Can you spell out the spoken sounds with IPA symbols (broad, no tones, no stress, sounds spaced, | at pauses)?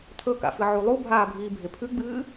tʰ ɵ k a̰ f ɨ ʕ u lˠ u bʱ aː bʱ iː bʱ e pʰ ʉ ɡ͡b ɨː